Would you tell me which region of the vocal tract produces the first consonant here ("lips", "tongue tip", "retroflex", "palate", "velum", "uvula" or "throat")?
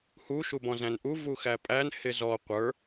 throat